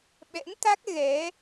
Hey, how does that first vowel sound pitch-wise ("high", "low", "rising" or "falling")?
rising